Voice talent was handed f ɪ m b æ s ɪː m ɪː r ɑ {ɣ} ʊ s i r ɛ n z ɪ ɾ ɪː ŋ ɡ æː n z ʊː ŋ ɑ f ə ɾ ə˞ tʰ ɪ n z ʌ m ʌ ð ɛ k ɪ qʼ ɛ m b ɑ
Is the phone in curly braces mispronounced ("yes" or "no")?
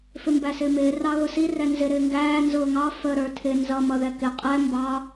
no